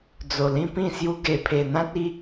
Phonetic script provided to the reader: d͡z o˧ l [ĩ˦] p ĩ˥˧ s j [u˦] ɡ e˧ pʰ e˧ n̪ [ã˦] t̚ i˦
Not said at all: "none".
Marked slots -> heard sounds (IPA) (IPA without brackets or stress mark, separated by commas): ĩ˦, u˦, ã˦